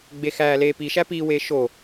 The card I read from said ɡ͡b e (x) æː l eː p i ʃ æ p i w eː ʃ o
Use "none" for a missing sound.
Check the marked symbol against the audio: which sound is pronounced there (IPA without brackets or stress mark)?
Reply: x